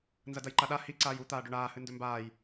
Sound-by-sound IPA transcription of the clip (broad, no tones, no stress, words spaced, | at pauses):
nzɐdɐjǃaɗa hi ǀaːju t̪aːɖɵɳaːhɨ ndɵmbaːj